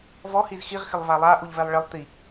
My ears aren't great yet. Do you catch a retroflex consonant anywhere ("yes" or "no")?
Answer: yes